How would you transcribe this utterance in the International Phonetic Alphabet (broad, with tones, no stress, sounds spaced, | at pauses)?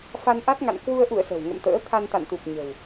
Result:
f a˧ n ʔ a˦˥ t̚ ŋ a̰˧˨ n k w u˧ ə̯ ʔ ṵ˧˨ ə̯ s ə̤˨˩ w ŋ ə̰˧˨ m t̪ ə̰ː˧˥ t̪ʰ a˧ n t̪ a̰˧˨ n t̪ u˨˩ p̚ ɲ ə̤˨˩ w